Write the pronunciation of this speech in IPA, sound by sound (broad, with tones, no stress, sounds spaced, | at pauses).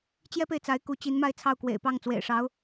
t͡ɕ j ɛ˥ p e˨ ɪ̯ t͡s a˧˥ ɪ̯ k u˧˥ t͡ɕ i˧˥ n m a˥˧ ɪ̯ t͡sʰ ɑ˥˩ ʊ̯ k w ḛ˨˩ ɪ̯ p ɑ˥˩ ŋ t͡s w ḛ˨˩ ɪ̯ ʂ ɑ˧˥ ʊ̯